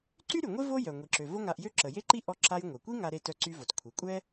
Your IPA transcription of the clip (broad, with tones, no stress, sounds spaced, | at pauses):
ǀ y˥ ɾ y˩ ŋʷ e˥ v o˥ j œ˩ ŋʷ i˩ ǁ ø˩ v o˥ ŋ a˧ ʔ j ø˥ ǁ ə˩ j e˥ ǃ i˥ ʔ ɔ˧ ǁ a˧ j ŋʷ ɛ˩ kʷ i˥ ŋ a˧ ɾ e˧ t œ˧ ǀ y˧ v o˩ t kʷʰ i˩ kʷʼ ɛ˥